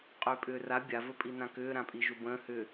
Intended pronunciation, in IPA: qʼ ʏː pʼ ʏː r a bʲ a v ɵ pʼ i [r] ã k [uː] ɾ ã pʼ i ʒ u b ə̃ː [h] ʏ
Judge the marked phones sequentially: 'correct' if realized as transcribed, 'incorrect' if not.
incorrect: n, incorrect: ʏː, correct

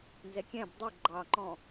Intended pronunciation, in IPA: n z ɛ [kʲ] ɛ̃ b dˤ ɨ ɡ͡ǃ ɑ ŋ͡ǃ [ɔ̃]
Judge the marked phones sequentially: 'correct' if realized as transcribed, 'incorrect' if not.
correct, correct

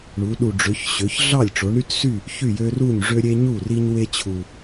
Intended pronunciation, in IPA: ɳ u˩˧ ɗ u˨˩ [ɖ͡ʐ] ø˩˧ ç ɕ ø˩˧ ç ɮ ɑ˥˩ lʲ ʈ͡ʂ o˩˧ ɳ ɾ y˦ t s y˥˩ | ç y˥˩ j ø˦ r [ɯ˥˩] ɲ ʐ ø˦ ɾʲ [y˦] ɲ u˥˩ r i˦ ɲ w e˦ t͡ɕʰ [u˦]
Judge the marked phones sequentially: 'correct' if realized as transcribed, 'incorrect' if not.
correct, incorrect: u˥˩, incorrect: e˦, incorrect: u˨˩

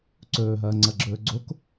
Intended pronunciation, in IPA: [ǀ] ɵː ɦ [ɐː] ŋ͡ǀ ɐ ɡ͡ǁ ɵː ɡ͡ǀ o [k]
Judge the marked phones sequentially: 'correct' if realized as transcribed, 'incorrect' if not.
correct, correct, correct

